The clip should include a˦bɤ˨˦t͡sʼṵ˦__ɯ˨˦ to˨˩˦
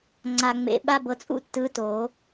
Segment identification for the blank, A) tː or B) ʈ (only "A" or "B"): A